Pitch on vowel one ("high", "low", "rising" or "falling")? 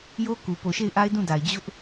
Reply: high